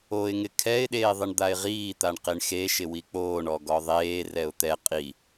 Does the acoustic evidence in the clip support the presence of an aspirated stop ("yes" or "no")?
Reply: yes